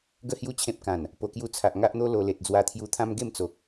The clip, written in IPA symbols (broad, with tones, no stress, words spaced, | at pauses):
ɡə˥˧hju˥˧ t͡ɕʰẽ˦p̚kã˨˩n | po˨˩kju˧ t͡sʰa˨ʔŋa˦ʔn̪o˦ lo˧ le˨t̚d͡zwa˧t̪ʰju˧t̪ʰã˦m ɡe˥˧mt͡so˨k̚